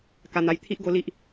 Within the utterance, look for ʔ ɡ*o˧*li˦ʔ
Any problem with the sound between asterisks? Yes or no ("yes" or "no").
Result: yes